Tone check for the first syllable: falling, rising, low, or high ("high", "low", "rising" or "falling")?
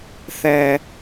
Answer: low